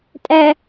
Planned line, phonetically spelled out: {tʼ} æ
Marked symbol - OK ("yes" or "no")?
yes